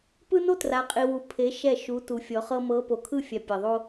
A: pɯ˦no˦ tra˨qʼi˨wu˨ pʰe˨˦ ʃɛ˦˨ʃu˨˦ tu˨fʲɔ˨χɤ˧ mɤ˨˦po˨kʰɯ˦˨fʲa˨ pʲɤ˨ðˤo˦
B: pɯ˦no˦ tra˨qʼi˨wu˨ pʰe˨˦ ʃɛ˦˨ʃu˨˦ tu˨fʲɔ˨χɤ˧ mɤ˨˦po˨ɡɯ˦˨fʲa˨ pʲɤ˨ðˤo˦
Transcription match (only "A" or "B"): A